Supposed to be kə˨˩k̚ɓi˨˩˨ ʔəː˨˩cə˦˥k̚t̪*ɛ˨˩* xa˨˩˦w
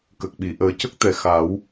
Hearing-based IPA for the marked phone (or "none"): ɛ˨˩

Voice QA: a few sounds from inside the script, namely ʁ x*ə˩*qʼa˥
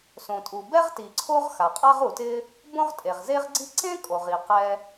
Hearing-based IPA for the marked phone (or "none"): a˩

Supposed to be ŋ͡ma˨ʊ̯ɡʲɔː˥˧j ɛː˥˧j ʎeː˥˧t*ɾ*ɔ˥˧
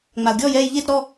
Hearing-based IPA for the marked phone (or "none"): ɾ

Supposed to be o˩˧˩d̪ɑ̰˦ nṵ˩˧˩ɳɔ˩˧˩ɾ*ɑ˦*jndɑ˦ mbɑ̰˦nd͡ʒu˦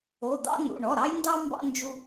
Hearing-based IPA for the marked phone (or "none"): ɑ˦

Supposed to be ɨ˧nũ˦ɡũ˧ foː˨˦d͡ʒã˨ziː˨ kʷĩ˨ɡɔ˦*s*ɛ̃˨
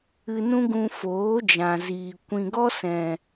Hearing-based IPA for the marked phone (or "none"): s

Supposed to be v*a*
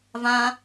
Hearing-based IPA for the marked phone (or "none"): ã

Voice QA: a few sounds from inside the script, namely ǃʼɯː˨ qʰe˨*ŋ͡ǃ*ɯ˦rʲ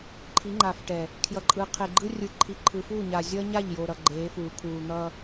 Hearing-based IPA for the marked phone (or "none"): ɡ͡ǃ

